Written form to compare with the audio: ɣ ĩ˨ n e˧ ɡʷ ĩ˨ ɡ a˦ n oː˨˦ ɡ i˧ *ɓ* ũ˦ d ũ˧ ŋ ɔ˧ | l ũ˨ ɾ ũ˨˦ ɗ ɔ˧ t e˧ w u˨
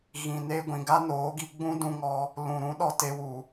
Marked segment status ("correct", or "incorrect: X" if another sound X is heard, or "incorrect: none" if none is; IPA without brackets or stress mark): incorrect: ɡ͡b